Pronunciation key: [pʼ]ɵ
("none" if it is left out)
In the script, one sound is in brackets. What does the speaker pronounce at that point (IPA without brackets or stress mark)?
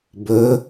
b